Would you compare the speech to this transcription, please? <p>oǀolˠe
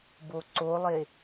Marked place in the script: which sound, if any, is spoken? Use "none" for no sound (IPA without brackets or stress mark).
b